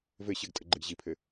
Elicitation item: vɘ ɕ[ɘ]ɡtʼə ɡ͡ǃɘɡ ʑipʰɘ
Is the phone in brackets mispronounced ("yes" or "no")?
no